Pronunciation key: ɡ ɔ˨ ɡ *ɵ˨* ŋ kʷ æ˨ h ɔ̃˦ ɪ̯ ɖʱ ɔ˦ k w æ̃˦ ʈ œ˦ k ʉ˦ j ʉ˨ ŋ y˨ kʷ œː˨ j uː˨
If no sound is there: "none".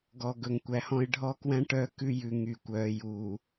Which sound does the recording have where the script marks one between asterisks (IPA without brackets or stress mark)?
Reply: ɵ˨